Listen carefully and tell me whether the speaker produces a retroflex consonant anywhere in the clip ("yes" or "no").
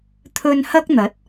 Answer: no